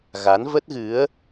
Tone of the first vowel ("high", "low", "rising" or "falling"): rising